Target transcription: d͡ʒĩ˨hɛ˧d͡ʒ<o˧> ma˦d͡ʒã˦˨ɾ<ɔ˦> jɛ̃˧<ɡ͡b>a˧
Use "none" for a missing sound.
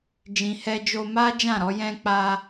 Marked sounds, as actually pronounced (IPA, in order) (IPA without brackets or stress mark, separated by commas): o˧, ɔ˧, k͡p